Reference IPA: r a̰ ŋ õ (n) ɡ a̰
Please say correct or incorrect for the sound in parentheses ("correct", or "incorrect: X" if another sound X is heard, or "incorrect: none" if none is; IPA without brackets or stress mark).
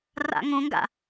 incorrect: ŋ